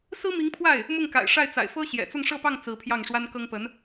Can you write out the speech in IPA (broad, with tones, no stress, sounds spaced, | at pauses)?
s ɹ̩˥ m i˧˥ ŋ pʰ w a˥˩ ɪ̯ | m ʊ˥˩ ŋ k a̰˨˩ ɪ̯ ʂ a˥˩ ɪ̯ t͡s a̰˨˩ ɪ̯ f ɤ˥ ɕ j ɛ̰˨˩ t͡s ʊ˥˧ ŋ ʂ ɤ˥˧ p ɑ˥˩ ŋ t͡s ɹ̩˧˥ pʰ j ɑ˥˩ ŋ ʂ w a˥ n k ɤ˥ ŋ p ə˧˥ n